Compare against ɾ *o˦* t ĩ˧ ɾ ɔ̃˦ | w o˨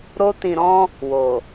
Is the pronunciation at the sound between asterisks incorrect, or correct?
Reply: correct